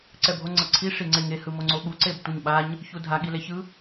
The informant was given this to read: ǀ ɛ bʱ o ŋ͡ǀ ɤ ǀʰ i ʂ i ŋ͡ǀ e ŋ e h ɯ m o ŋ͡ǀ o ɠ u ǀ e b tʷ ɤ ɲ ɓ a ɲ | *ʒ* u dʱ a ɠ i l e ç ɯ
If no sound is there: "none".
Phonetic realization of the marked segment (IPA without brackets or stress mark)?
ç